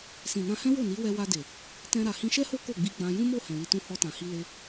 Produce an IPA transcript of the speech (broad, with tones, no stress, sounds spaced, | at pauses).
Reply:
s ĩ˨ n ã˧ h ɛ̃˦ w o˦˨ n i˨˦ w ɛ˧ w a˧ d e˨ | t ɛ̃˧ ɾ a˨ h ĩ˧ ʃ ɛ˦ h o˦ k o˦˨ ɡ͡b i˧ ɡ͡b ã˧ j ũ˦ m o˦˨ h ɛ̃˨ l i˧ t ũ˦ h ɔ˧ t ã˨ h i˧ l e˧